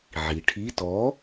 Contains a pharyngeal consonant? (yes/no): yes